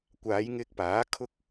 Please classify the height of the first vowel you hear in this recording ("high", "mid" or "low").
low